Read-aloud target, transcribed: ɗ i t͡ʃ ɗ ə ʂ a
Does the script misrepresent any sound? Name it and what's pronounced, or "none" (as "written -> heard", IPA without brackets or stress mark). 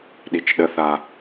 ʂ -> θ